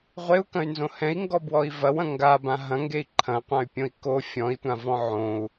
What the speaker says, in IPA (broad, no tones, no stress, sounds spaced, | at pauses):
ʁʷ e u̯ k ɐ̃ y̯ n z õ h ɛ̃ i̯ ŋ ɡ ɔ b w ɔ i̯ v ɐ w ɐ̃ ŋ ɡ a b ã ɦ ɐ̃ ŋ ɡ e i̯ ǃʰ ɐ̃ qʷ ã y̯ pʲ õ i̯ k o fʲ ɔ̃ i̯ tʷ ã v ɔ̃ ʕ õ u̯